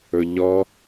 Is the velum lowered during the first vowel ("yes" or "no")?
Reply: no